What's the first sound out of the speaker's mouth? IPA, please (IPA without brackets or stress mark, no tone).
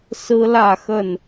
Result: s